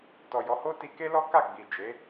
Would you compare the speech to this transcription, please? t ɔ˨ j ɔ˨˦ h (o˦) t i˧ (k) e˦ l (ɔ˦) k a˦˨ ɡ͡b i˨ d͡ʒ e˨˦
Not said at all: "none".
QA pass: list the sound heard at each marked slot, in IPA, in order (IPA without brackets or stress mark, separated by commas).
o˦, k, ɔ˦